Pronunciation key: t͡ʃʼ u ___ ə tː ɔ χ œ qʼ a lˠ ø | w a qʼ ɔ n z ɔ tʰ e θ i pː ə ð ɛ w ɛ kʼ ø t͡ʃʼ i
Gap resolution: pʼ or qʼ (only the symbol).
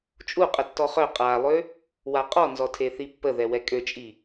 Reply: qʼ